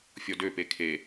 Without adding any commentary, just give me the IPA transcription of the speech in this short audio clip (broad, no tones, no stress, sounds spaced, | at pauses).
fʲ ɔ d ø p e kʰ e